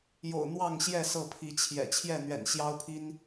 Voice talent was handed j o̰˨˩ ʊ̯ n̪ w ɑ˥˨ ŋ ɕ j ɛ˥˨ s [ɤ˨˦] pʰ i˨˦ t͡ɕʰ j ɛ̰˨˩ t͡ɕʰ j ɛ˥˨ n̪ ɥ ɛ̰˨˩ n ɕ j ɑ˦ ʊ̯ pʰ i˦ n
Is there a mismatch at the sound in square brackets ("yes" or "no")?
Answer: yes